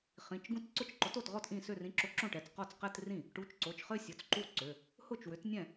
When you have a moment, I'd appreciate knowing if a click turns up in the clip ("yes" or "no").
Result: yes